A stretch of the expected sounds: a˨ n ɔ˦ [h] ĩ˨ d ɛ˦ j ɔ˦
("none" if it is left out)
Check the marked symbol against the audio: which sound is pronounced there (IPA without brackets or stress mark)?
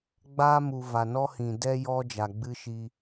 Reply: h